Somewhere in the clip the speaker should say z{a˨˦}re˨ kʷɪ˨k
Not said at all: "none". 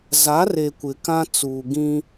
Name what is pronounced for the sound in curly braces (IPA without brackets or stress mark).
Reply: a˨˦